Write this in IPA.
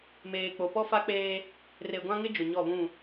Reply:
meː˨k͡po˨ pɔ˦fa˦k͡peː˦ | re˨ɡʷã˦ŋɪ˦ d͡ʒʊ˨ɲɔ˦˨βũ˦˨

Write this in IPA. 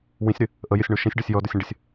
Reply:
wĩsʲɾɪ | ʔəjɪsʲɳu ʃĩsʲɖɔsʲ jɔdʊsʲə̃ɖɪsʲ

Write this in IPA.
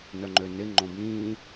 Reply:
nœŋ͡ǃønɪ ŋ͡ǃõbĩː

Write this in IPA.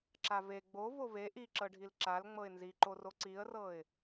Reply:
ǁave ɡ͡bo vove ʔiǁɤɖʱil ǁal ŋ͡mɤɪ̯nziǃoro ǀiə̯rɤɪ̯

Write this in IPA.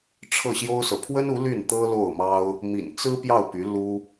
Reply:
ʈ͡ʂʰɤ˥˩ɕjo˥ʊ̯sɤ˨ pʰwə˥nu˧˥ ly˥˩n t̪ɤ˥lo˥˩ʊ̯mɑ˥ʊ̯ | mḭ˨˩nt͡sɹ̩˥ pjɑ˥˩ʊ̯py˧˥ lu˥

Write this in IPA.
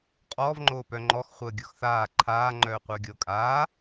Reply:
qʼɔːv ŋ͡ǃoːpœŋ͡ǃɔx χʷəːɡʲɤxθaː ǃʰaː ŋ͡ǃœːqʷœːɡʲɤ kʼaː

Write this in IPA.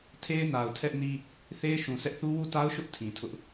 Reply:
tʰe˦ɪ̯na˨ʊ̯ tʰɛ˦ʔni˦ | θe˦ɪ̯ʃũ˨sɛ˦ʔθu˦ wu˦˨ta˦ʊ̯ʃʊ˦ʔ tʰĩ˨tʰʊ˦ʔ

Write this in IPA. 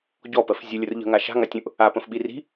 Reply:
ɟɔpɜf zʲəlʲər ʎə̤ŋa ʃa̤ŋatʲũʔ | apə̃fɓi ri̤

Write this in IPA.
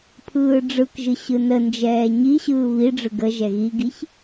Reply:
pʰɯːɖ͡ʐɯkʒɯ ɕɯnənd͡ʒɛː ɲiɕɯː βiɖ͡ʐɯ ɡə ʒɛɣiɡiç

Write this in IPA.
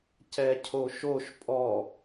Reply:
cɛcʰoʃoʃ pʼɔ

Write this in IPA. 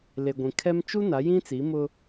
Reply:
le˨ɡʷĩ˨ kʰɛ˦m t͡ʃu˦ na˨˦jĩ˦ t͡si˨˦mʊ˦

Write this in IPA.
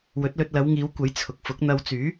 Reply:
wɵ˨˥t̚lɵ˧t̚lɐ˨˧wŋiː˨˧w kʷɐ˨˥j t͡sʰʊ˨k̚fʊ˨˥k̚n̪ɐ˧w t͡syː˨˥

